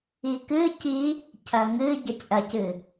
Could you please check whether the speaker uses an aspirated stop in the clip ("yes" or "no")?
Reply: yes